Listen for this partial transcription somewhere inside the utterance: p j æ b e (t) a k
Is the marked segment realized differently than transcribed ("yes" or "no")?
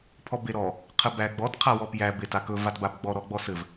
no